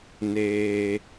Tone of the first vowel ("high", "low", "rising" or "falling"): low